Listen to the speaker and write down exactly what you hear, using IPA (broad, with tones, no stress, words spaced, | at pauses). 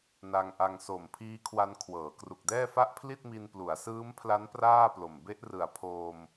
na˧ŋʔa˧ŋ so˨˩m pʰiː˦˥kʰwa˧n kʰwɤː˩˦kru˨˩k̚dɛː˥˩ fa˥˩ʔpʰli˥˩t̚ mi˧nplu˩˦a̯sɯː˦˥mpʰla˦˥n praː˥˩plo˨˩m be˦˥ʔrɯ˨˩a̯ pʰoː˧m